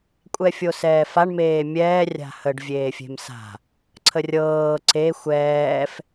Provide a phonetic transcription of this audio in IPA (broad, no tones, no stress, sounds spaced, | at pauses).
kʷʼ ɛ fʲ o s ɛː f a ɳ m eː mʲ ɛː rʲ a̤ h ə ɖ vʲ eː fʲ e̤ m s a̤ | ǀʰ ə rʲ ɤː ǀ e xʷ ɛː f